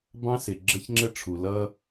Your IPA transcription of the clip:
b ɑ̃˦ s ɪ˨ ɡ͡ǁ ə˦ ç ŋ͡ǁ ə˦ ʈ͡ʂʰ u˨ l ʌ˦

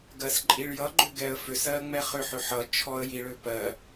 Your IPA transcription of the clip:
ɡ ɜ s ǃʼ i ɭ j ʌ ɡ͡ǃ ʏ ɡ ɛ ə̯ f ʏ s ɜ ŋ͡m ɛ χ ʏ ħ ʏ ħ ʌ t͡ʃʰ ɔ ə̯ j i ɭ ø p ɜ

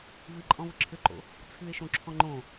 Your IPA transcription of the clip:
v ɨ ǃʼ ɔ̃ v ə ǁʰ ʏ ǃ o̰ | t͡sʰ ɨ e̯ ʃ õ ǁʰ ɔ̃ ŋ͡ǃ õ

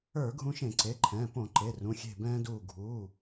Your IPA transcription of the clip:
ə˞˧˩˧ ɡʱ ũ˧ ʃ ẽ˧˩˧ ǀ e˩˧˩ ǃʰ ɛ̃ː˩˧˩ p õ˧˩˧ ǃ e˩˧˩ r ũ˩˧˩ xʲ e̤˧˩ b ɛ̃ː˧ d uː˧˩ ɡʱ uː˩˧˩

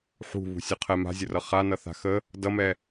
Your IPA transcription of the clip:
ħ ṳ β ṳ sʲ o qʰ ɛ m a̤ zʲ ə r ʌ χ a n ʌ θ a̤ x ə | d ʌ m ɛ

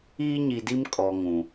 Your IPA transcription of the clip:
iː˦ ɲ i˨ d i˦ m kʼ ɔ˨ ŋ ũ˨

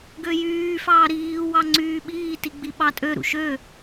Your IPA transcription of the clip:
ɡ ø j yː f ɑː ɾ iː w ɑ ŋ͡ǀ yː ɓ iː t i ɡ͡b i ɓ ɑ tʼ ø ɾ ṵ ʃ ø

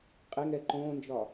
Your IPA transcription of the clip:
qʼ e ŋ ɛ ǃ õː n d͡ʒ ɒ

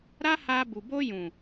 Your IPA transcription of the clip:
ɾ a˦ h a˧ b u˨ b o˧ j ũ˨

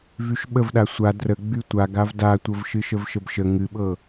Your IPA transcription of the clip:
v y ʃ ɓ ə v ɗ a sʷ a d r ə ɡ͡b y tʷ a ɡ a v d a tʷ ə v ʃ ɨ ʃ ə v ʃ ə b ʃ ə ŋ ɨ ɓ ɤ

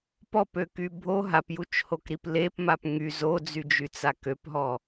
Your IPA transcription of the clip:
p ɔ p ø k y bʱ o ɦ a p j u t͡ʃ h o k ɾ i p l e p m a p ŋ y z o d͡z y d͡ʒ y t͡s a k ø p ɦ ɔ

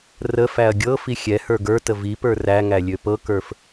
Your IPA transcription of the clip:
r ə f æ ɐ̯ ɡʲ ɤ f i xʲ ɛ h ə˞ ɡ ə˞ t ə v i p ə˞ r æ ŋ æ lʲ ø p ɤ k ə˞ f

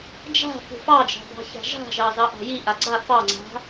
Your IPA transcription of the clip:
d͡ʒ a̤ f ṳ f ɑ d͡ʒ ɑ̤ b ɑ̤ ç a̤ ʒ a̤ ʒ ɑ z ɑ ʔ ɑ̤ j i ʔ a ɡ͡ǀ a f ɑ ŋ͡ǀ a̤

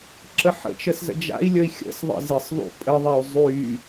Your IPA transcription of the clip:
ǁ ə ħ ə̰ t͡ʃ ə s z ə̰ d͡ʒ a̰ i̯ lʲ ə i̯ xʲ ə̰ s ðˤ ə̰ z ɪ sˤ ðˤ ṵ pʼ ə ðˤ ɛ u̯ zˤ y

